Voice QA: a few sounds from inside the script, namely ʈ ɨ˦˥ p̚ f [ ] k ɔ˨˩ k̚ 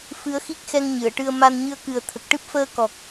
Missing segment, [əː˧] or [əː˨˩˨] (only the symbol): əː˧